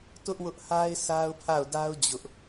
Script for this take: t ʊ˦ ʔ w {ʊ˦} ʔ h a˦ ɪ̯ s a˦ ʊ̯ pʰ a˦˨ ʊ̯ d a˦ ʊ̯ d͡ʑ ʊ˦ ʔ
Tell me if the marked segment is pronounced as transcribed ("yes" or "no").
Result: yes